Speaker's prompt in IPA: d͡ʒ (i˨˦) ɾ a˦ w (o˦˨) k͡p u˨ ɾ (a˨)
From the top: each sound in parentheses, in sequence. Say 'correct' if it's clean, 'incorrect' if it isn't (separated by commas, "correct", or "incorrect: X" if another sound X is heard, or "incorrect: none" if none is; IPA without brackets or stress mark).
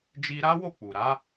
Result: incorrect: i˧, correct, incorrect: a˨˦